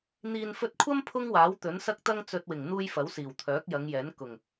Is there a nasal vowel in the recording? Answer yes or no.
no